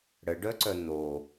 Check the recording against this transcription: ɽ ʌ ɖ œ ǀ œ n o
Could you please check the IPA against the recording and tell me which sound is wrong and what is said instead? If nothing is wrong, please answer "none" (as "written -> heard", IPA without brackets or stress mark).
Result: ʌ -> ə